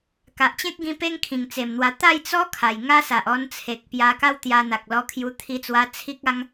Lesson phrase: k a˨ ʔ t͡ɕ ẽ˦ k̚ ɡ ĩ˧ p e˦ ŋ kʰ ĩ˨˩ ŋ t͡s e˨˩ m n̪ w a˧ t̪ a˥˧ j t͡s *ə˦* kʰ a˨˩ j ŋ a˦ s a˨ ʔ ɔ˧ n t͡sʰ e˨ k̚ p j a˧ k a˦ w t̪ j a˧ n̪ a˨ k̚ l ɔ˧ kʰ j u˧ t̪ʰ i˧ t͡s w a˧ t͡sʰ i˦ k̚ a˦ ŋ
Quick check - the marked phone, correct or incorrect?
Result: incorrect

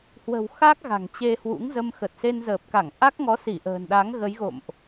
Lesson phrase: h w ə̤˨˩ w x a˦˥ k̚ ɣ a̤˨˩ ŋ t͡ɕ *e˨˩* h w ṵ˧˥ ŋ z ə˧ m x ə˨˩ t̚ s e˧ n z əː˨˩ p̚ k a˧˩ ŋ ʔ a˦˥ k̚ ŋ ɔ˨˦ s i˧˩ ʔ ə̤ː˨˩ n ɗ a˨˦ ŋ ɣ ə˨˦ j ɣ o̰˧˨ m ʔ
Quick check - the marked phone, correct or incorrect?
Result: incorrect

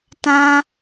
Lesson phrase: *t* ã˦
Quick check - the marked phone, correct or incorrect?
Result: correct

